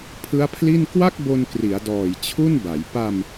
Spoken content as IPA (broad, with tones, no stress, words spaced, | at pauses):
pʰɯ˦˥a̯pʰli˥˩n kwa˥˩k̚bo˧n kri˩˦a̯dɔː˨˩j t͡ɕʰu˥˩nba˩˦j pa˧m